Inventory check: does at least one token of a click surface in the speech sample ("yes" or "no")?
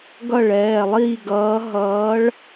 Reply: no